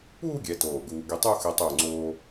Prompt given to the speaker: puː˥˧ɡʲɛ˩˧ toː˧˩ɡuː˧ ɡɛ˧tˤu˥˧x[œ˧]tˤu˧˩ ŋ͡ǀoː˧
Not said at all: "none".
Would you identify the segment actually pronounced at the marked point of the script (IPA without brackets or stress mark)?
ɛ˧